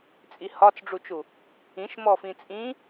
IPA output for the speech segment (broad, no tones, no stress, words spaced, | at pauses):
t͡sʼihɒt͡sɖ͡ʐut͡ʃu | ĩʃmɔfĩ t͡sʼĩ